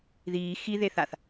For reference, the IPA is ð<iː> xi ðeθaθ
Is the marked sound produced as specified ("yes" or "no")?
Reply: yes